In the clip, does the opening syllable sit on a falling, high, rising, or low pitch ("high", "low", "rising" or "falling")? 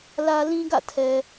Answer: high